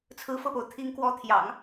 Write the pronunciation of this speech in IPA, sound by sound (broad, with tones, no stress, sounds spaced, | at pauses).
t͡sʰ ɹ̩˧˥ f ɤ˥˩ p o˩ ʊ̯ t̪ʰ i˧˥ ŋ k w ɔ˧˥ t̪ʰ j ɑ̰˨˩˦ ŋ